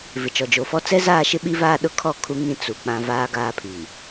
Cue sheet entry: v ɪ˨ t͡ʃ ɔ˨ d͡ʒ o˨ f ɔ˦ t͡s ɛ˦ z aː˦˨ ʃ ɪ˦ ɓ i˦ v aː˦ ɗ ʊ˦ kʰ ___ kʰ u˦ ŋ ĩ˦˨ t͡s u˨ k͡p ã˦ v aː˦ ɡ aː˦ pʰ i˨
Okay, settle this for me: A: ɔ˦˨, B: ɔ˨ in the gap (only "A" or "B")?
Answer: A